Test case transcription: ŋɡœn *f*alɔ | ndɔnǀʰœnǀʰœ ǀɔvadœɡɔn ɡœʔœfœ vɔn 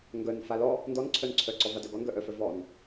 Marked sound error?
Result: no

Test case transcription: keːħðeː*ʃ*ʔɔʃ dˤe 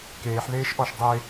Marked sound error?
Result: no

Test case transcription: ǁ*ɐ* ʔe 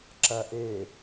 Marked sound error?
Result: no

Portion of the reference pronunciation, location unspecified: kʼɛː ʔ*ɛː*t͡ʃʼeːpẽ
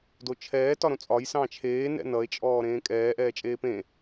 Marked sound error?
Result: no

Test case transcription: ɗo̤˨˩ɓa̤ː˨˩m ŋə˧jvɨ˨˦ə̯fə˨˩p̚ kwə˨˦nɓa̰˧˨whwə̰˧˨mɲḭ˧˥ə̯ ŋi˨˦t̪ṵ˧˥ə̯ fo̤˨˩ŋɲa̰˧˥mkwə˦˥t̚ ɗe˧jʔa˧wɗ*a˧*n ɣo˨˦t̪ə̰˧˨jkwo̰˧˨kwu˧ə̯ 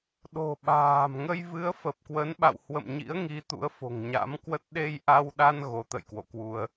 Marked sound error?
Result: no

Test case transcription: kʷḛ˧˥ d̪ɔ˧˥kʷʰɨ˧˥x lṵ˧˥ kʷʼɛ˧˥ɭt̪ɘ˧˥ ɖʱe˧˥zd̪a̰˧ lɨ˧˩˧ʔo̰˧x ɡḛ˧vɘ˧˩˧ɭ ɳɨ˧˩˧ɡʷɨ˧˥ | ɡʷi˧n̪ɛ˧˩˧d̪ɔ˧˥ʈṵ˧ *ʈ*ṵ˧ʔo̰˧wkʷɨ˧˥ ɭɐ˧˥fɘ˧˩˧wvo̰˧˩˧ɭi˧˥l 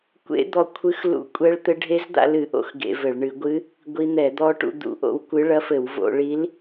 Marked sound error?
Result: yes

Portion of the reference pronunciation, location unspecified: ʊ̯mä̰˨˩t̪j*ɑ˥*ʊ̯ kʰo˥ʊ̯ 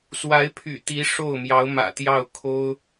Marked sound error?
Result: yes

